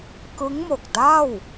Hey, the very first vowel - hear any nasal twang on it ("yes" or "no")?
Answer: no